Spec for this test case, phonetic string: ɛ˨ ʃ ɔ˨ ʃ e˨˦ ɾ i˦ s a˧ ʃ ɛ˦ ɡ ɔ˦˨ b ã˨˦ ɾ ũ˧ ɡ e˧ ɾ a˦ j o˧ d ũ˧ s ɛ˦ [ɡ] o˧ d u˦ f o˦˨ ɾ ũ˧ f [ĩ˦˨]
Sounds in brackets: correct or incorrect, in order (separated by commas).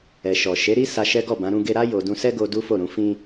correct, incorrect